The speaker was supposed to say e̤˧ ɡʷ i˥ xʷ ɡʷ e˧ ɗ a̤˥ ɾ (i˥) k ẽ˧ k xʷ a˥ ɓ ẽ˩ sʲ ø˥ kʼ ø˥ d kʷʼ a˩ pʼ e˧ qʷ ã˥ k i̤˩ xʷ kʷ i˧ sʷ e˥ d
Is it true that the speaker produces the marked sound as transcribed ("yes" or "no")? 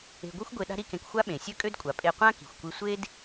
yes